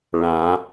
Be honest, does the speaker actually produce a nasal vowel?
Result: yes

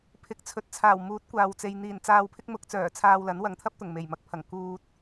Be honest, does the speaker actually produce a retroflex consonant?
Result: no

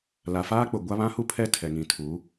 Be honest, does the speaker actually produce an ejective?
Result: no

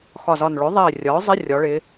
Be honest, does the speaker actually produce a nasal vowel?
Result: no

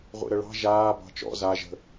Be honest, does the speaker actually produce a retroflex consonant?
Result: yes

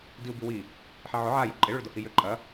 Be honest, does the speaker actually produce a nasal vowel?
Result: no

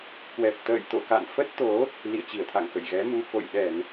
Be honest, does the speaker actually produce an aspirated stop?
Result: yes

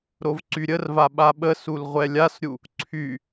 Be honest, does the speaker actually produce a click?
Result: yes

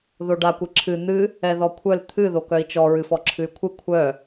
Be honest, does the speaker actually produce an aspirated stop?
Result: yes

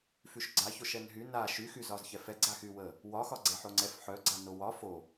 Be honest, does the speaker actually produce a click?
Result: yes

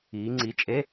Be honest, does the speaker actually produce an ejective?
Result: yes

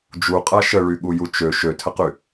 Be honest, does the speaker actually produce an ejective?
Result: yes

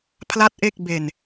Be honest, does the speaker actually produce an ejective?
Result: no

